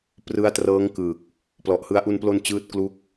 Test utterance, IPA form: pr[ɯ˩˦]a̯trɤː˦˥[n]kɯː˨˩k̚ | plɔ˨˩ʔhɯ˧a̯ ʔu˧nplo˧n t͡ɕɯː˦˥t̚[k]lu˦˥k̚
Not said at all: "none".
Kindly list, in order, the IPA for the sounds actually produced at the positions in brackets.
ɯ˦˥, ŋ, k

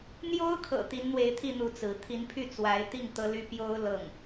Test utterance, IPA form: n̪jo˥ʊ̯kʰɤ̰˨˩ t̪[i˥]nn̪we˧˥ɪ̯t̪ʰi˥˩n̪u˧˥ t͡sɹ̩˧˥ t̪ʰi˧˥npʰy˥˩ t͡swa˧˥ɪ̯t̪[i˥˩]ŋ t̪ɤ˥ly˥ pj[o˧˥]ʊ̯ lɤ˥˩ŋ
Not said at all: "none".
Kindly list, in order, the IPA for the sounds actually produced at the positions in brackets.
i˧˥, i˥˩, o˥

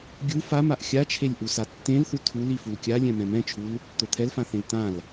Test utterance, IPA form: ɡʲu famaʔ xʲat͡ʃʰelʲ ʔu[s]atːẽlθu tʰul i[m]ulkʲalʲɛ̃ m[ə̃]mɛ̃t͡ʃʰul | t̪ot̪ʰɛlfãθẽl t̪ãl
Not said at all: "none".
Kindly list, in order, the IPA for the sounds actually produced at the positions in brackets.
s, f, ɛ̃

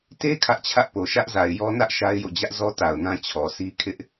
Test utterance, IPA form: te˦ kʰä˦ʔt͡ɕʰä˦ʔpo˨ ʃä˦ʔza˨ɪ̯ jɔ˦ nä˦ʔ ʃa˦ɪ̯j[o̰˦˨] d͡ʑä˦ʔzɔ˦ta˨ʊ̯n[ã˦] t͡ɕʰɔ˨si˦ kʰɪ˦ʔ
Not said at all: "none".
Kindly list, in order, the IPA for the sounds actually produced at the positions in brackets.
o̰˦˨, ã˦

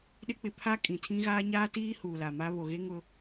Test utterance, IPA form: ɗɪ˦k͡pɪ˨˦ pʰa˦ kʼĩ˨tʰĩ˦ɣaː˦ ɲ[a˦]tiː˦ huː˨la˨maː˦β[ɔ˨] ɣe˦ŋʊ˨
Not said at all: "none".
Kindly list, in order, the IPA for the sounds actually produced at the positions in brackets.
aː˦, o˨

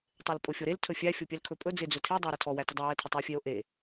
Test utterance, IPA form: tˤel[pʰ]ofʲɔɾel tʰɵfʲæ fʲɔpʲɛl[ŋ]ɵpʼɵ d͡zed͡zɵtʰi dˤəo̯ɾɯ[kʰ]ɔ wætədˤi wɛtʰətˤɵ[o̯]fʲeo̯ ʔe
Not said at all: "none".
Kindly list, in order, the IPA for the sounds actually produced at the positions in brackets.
pʼ, kʰ, tʰ, e̯

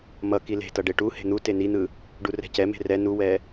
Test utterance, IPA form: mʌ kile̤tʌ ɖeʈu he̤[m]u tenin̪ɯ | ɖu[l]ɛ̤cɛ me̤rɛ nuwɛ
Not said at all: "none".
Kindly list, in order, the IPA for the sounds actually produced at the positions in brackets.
n̪, r

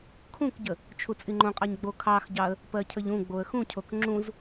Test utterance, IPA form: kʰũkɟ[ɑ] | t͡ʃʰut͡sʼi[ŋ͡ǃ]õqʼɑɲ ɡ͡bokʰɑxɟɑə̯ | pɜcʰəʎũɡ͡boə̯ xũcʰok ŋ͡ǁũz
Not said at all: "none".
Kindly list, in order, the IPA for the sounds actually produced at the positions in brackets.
ə, ŋ͡ǃ

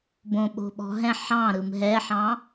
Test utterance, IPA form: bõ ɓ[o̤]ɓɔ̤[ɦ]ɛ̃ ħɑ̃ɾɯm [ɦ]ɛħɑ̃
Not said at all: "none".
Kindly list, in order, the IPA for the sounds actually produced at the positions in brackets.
o̤, ɦ, ɦ

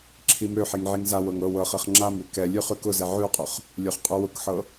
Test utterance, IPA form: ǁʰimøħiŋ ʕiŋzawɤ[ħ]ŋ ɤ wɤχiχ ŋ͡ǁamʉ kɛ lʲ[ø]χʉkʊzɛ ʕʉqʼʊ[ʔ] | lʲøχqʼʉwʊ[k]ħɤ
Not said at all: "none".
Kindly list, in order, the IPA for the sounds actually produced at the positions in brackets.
none, ʉ, χ, k

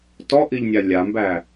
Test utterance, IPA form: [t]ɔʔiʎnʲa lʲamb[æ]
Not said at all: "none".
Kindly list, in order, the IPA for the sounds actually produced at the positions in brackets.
t, æ

